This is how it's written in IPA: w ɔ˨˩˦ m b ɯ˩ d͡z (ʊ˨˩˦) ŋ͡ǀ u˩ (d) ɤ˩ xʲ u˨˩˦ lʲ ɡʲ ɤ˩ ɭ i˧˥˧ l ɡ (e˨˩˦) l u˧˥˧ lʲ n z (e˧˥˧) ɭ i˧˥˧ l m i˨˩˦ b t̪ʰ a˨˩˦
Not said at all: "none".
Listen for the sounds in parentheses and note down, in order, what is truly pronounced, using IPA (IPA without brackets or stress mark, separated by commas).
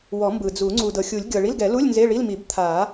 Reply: u˨˩˦, d, ɛ˨˩˦, e˧˥˧